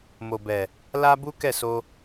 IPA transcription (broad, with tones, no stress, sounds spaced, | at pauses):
m o˨ b ɛ˨ | l a˦ b u˦ k ɛ˦˨ s o˧